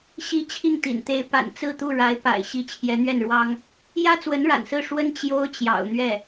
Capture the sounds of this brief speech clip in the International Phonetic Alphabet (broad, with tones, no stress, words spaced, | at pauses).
ɕi˧˥ t͡ɕʰi˥˩ŋt̪ḭ˨˩nt̪e˧˥ɪ̯ pa̰˨˩nt͡sɹ̩˥˧t̪u˥˩ ɻa˧˥ɪ̯pa̰˨˩ɪ̯ ɕi˧˥ t͡ɕʰjɛ˧˥n̪ɥɛ˥˩nɻwɑ˥ŋ | jä˥t͡swə˧˥n ɻa̰˨˩nsɹ̩˥˩ ʂwə˥n t͡ɕjo˥ʊ̯t͡ɕjɑ̰˨˩ʊ̯n̪ɥɛ˥˩